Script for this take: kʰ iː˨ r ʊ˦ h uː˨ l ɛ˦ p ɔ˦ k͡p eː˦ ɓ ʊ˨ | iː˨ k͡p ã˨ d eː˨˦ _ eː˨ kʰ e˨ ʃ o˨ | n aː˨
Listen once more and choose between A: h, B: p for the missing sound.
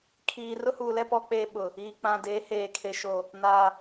A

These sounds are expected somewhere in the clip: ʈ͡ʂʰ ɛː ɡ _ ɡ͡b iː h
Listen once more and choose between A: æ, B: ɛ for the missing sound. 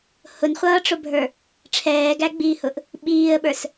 A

